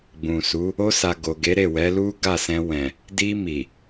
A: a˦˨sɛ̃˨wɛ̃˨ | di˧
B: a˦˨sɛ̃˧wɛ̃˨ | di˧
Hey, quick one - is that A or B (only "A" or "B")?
B